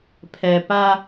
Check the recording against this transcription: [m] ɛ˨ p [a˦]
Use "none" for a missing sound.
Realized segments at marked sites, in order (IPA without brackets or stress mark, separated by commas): pʰ, a˦